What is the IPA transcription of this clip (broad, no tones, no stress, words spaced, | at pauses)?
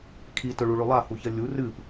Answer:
kʰi tɵɭuɭʉ lˠahuçɐ lʲu rɨp